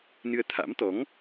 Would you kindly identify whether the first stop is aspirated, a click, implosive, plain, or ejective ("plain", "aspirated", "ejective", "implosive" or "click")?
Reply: aspirated